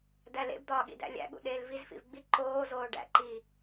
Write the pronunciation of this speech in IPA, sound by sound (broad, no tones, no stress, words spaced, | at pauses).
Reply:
d̪ælḛbd̪ɒː ɠḭdæ̰lʲæ̰ɠṵ ɗeːlvizfḭv ɡ͡bi ǃoːzoː ɖæ̰ǃiː